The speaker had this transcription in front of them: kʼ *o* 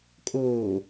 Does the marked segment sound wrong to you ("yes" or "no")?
yes